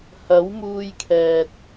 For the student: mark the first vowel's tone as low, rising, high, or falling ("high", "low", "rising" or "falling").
rising